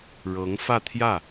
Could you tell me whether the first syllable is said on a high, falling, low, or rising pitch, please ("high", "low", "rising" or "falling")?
rising